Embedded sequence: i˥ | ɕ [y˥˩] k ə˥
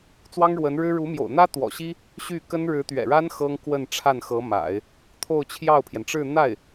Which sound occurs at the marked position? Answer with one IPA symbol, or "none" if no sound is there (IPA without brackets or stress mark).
y˥˩